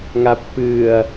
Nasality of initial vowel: oral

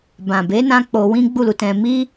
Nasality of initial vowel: nasal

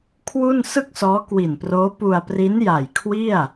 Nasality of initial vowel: oral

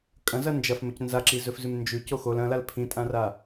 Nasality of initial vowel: nasal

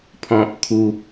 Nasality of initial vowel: nasal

